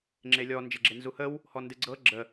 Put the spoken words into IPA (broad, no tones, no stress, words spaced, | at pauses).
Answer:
ŋ͡ǁelʲɔ nd͡ʒeɡ͡ǁenzuhəw | hɔndɨɡ͡ǀɤ ɡ͡ǁə